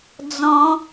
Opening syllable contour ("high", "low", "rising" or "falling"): rising